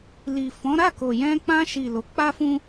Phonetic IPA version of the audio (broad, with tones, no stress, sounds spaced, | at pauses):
l i˨ f ɔ̃˨˦ ɾ a˦˨ k o˨ j ɛ̃˧ k͡p ã˧ ʃ i˨ l o˨˦ k͡p a˦ f ũ˦